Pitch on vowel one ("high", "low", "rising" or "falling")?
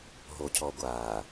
high